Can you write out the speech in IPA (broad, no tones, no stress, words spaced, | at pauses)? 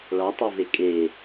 ɭɑtˤove kʼe